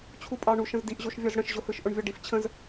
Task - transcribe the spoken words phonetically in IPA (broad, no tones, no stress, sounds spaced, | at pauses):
t͡ɕʰ u pʼ ɑ ɳ u ʃ ə̃ z d i ʔ ʑ o ʃ vʲ ɔ z ɽ ə̃ ʃ ʑ ʊ h ɯ ʃ ʔ ʊ ɳ vʲ ɔ ɖ i f t͡ɕʰ ə̃ z